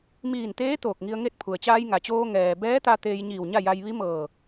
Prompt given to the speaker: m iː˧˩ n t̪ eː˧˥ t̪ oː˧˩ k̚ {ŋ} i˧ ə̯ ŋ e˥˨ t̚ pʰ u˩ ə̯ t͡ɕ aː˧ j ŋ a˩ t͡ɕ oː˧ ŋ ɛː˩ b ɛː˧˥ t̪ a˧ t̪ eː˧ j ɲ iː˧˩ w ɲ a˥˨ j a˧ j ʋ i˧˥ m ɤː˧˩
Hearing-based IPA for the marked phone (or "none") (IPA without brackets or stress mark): ŋ